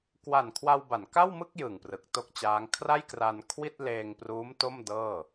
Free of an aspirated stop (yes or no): no